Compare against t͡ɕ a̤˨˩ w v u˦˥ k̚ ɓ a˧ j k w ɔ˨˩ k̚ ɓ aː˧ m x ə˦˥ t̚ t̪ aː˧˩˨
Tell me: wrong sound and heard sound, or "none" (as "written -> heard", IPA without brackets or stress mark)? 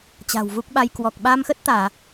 none